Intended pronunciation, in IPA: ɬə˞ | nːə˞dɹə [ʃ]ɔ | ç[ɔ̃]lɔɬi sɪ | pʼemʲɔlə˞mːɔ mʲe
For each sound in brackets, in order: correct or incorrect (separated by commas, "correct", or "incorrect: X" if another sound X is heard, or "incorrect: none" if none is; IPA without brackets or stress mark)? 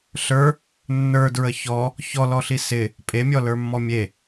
incorrect: ç, incorrect: ɔ